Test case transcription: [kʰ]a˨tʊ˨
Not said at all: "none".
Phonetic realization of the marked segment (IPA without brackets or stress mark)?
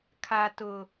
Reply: kʰ